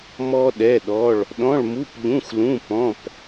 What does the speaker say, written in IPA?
mɔ˥ɗɛ˧˥˧ɗɔ˧˥˧ɭ | ɗɔ̃˧˥˧ɭmu˧˥˧pʎũ˧˥˧xlũ˧˥˧ pɔ̃˧˥˧p

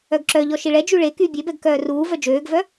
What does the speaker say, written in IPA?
œɡǁœʎɔ ʃiɭɛd͡ʒy ɭe ky bʲebɛɡ kœːruːvœ d͡ʒøːɡvœ

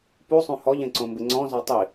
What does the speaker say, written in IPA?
pusˤũ hɔʎẽǀõmbɪ ŋ͡ǀɔ̃zɔ tˤi

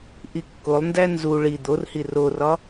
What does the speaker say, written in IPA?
ʔikːolˠndæ nzu ɭi d̪orhi rorɒ

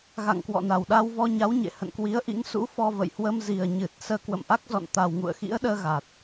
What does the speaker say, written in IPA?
ɣa̰˧˨ŋkwɔ̰˧˨na˨˩w ɗa˧wvɔ˧ɲa˨˦w ɲḛ˧˨hə̰˧˨nkwi˨˦ə̯ ʔḭ˧˥ŋsṵ˧˥ fɔ˧və̰˧˨j hwə˧mzi˨˩ə̯ ɲɨ˨˩t̚ səː˧kwə̰˧˨mʔa˦˥k̚zɔ̰˧˨n t̪a˨˩wŋṵ˧˨ə̯xḭ˧˥ə̯ɗəː˧ ɣa˨˩t̚

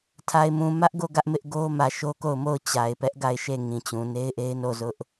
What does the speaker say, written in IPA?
tʰa˨ɪ̯mũ˨mä˦ʔɡo˦˨ ɡä˦ʔmɪ˦ʔɡo˦ mä˨ʃo˦ko˦˨ʊ̯mo˦˨ʊ̯ t͡ɕa˨ɪ̯pɛ˦ʔ ɡa˦˨ɪ̯ʃe˦˨ ŋĩ˨t͡ɕũ˨ ne˦ɪ̯ʔe˦ɪ̯ no˦˨zʊ˦ʔ

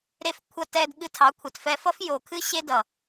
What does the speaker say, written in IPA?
ɾe˧f kʷʰʌ˧tɛ˧d ɠɨ˧tʰɑ˨˦kʷʰɛ˨tfɛ˧ fʌ˦fjo˨kʰɨ˦ ɕe˧ dʌ˨

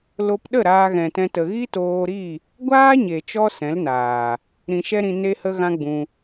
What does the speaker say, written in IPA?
lo˧pɗə˦˨ ɾaː˧ɣɛ̃˨tɛ̃˧tə˨ ɣi˦toː˧ɾi˦˨ | ɡʷaː˦ɲe˨t͡ʃɔ˧ sɛ̃˨˦lnaː˨ | ɾĩ˧ʃɛ˦ɾĩ˧ ne˦hə˦ ɣã˦ɡ͡bũ˧

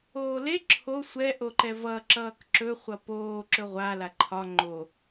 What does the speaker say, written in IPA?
oːle ǁʰo sʷɛ ʔoǃɛvʌ ǁʌːkǁɵ χʷʌpoː ǁɵʁʷa laǃʰɒ ŋ͡ǃo

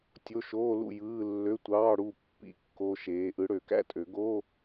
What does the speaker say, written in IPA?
tʲo˧˥˧ʃoː˧˥˧lṵ˥˨ jɯː˧˥˧ lːø˧˥˧tʷɑː˧˥˧ɽu˥˨ pːḭ˥˨ kːo˧˥˧ʃeː˨˦ ʔɯ˨˦ɽø˨˩˦kæ̰˥˨tʼø˨˩˦ ɡo˧˥˧

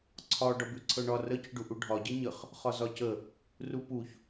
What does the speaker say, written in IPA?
ǀʰɒ ɖɒbʉǀʰɤɳɒ rə cʉɖuʔuɖʱɒ ɟeɲəχ | χɒzɒcə | rupuç

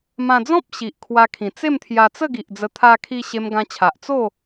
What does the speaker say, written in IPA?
mã˧d͡zɔ̃˦p̚ ɕi˨ʔkʰwa˧kʰĩ˨˩ t͡se˥˧mt̪ʰja˧t͡sə˥˧ɡi˨ʔ d͡zə˧ t̪ʰa˧kʰi˧ ɕe˧mɡã˧t͡ɕʰa˨ʔ t͡so˥˧

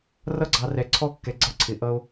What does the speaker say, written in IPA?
rʌ˦ɡ͡ǀɑ˧ rɛ˧ǀʰɔ˦kːɛ˧ ɡ͡ǀʌ˦ǀʰɪ˧ʔʌ˦o̯

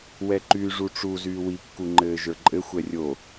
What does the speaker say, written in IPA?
wɛǃyːʐuʈ͡ʂu zyːwi kːuŋ͡ǃɘːʒə˞ǃʼɘ xʷɛrʲo

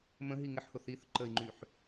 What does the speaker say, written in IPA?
mə̃ɦi ŋɪħhʊ θiθ ǃəi̯ŋ͡ǃyħ

